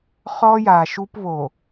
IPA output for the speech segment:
χɔ˦ja˨ʃu˦pβo˨

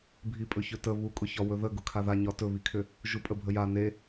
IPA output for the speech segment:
bʱipʼɵçɵtə βukʼʊçɒ wɵðə ɡʊkʰaða ɲɒtɵβikʰʏ | ʒupʼəbʱəja ne

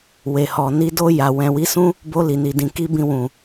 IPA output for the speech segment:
we˨hɔ˨ni˧ do˧ja˨ wɛ̃˨wi˨˦sũ˦ | bo˧li˨ni˨dĩ˨ ki˧bĩ˧wũ˨

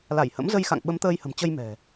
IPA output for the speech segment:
la˧˩jhə̰˧˥mzə˧jxa̰˧˨ŋ ɓə˨˦mt̪əː˧jhə̤˨˩mt͡ɕə˧j mɛ̤˨˩

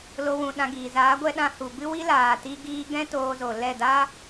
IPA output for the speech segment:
lo˧wũ˨ɗã˧ɡiː˨ zaː˨˦ɡʷɛ˧ ɗã˧hu˨bɨ˦ wi˦laː˨tiː˧ɡiː˧ ɡɛ̃˦ toː˧zo˨lɛ˦˨ da˦

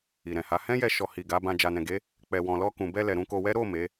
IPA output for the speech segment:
i˨ɾɛ̃˨ha˨˦ hɛ̃˦jɛ˧ ʃɔ˨hi˨ ɡa˨˦bã˧ d͡ʒa˨nɛ̃˨ɡe˨˦ | k͡pɛ˨wɔ̃˨lɔ˧ kũ˨bɛ˧lɛ˨ ɾũ˧ko˧wɛ˦ ɾo˦˨ me˨˦

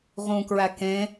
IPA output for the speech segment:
ʁũkɹæ kẽ

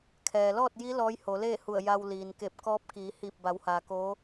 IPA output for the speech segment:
kʰɛː˩lɔː˥˨t̚ji˧˥ lɔː˧˥jho˩˧ leː˥˨hu˧˩ə̯ ja˧w liː˩nke˧˩p̚kɔː˧˥p̚ kiː˩˧ hiː˧˩p̚ba˩˧whaː˩ koː˧˥

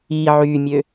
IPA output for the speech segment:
i ʕymʲø

